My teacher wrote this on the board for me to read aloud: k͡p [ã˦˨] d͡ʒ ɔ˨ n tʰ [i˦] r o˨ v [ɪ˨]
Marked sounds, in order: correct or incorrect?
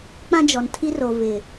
incorrect, correct, correct

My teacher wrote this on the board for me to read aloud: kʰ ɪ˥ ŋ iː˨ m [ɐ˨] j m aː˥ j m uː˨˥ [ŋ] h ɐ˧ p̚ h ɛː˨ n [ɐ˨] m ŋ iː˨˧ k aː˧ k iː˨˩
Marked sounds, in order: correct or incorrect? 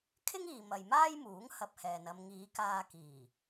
correct, correct, incorrect

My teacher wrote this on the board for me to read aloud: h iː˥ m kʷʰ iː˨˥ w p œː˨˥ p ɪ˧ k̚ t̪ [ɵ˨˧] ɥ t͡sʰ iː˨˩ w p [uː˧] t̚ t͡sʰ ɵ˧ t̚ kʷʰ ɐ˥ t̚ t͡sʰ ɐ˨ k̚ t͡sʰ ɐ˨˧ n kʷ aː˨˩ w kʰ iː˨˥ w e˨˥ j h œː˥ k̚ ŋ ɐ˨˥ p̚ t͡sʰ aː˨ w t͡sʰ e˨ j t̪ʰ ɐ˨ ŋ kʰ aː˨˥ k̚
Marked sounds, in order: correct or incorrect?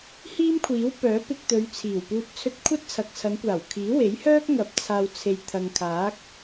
correct, correct

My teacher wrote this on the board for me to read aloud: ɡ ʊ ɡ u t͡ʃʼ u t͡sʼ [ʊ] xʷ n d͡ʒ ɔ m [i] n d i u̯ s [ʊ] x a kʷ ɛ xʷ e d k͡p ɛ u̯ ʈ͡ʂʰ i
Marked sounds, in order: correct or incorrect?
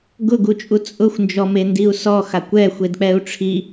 correct, incorrect, incorrect

